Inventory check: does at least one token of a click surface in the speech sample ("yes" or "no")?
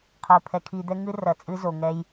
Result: no